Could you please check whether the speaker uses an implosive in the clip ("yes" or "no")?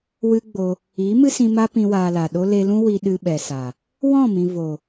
yes